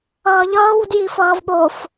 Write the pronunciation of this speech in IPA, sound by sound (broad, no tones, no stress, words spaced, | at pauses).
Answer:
ʌːʎʌːw djifʌːvɓof